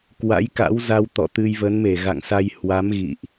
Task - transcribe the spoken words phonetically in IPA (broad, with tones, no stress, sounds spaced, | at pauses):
k w a̰˧˥ j k a̰˧˥ w z a˧ w t̪ ɔ̰˧˨ t̪ ɨ˧ j v ə˨˦ n m e˧˩ ɣ a̰˧˨ ŋ s a˧ j h w a˨˦ m ɣ ḭ˧˨ ʔ